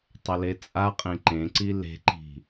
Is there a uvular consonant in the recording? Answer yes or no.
yes